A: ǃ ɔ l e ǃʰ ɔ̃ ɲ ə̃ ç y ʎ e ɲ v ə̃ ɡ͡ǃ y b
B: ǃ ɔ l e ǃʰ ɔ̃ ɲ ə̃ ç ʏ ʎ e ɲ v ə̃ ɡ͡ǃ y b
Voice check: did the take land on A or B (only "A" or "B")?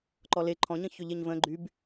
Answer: B